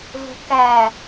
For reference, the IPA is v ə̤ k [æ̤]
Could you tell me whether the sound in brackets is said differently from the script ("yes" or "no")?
yes